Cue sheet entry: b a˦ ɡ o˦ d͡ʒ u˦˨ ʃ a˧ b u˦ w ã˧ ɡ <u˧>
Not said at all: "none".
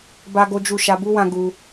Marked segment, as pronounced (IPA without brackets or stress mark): u˧